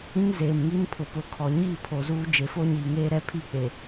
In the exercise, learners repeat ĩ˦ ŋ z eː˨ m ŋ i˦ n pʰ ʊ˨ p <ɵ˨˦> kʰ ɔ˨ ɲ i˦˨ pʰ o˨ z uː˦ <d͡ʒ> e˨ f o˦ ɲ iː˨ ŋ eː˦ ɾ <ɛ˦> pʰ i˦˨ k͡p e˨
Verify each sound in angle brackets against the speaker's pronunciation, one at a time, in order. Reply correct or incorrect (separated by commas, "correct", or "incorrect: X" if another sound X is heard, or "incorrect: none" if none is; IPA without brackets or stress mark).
incorrect: ʊ˨˦, correct, correct